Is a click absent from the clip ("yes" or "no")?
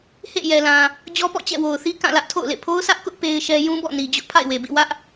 yes